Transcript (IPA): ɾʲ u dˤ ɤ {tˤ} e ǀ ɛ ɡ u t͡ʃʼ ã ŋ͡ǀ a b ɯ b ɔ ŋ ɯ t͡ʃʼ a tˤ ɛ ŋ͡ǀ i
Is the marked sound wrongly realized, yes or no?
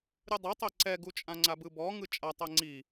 no